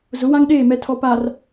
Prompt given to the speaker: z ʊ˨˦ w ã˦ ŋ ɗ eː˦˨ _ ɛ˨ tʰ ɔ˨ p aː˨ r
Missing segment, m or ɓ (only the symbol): m